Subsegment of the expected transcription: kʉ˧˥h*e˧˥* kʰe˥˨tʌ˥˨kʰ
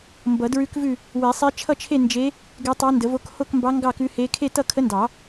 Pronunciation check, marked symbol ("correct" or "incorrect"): correct